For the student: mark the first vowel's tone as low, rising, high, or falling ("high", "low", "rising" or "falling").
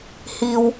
low